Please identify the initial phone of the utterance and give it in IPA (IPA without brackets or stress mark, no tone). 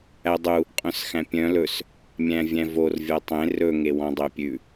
æ